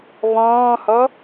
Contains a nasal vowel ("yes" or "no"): yes